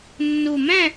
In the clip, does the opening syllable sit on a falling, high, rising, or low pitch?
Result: low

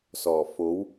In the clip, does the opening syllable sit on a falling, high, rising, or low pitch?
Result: low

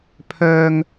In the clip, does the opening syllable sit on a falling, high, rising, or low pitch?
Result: high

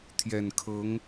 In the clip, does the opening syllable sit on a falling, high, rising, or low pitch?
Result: low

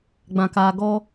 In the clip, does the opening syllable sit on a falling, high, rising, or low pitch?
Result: low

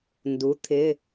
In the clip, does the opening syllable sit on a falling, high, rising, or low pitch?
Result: rising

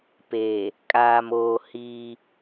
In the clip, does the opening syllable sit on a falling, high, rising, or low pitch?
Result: low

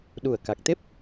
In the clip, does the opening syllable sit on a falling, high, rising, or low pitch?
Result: low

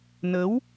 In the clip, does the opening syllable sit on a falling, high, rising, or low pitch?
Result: rising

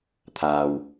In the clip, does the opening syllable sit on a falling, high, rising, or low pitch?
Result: low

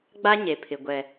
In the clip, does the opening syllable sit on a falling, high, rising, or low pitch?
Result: high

